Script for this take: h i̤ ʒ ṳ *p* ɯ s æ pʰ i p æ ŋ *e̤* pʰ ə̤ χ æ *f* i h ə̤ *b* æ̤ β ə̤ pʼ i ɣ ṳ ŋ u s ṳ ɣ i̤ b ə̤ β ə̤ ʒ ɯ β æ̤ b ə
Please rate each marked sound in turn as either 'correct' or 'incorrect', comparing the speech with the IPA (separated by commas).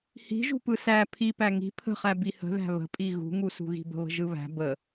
correct, incorrect, incorrect, incorrect